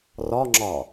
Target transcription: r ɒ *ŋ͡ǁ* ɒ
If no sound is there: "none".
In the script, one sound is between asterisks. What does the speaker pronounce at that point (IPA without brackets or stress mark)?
ŋ͡ǁ